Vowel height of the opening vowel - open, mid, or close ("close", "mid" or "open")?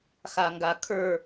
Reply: open